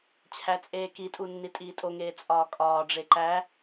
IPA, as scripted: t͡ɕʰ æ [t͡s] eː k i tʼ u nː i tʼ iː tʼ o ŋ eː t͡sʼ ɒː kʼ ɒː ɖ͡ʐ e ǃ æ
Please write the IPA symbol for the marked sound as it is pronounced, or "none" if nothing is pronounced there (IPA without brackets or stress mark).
t͡sʼ